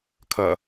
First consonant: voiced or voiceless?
voiceless